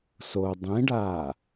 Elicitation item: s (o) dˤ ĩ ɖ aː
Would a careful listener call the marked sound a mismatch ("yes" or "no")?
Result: no